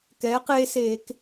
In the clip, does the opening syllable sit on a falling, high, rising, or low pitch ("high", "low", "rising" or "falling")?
rising